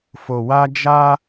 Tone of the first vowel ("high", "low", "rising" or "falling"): low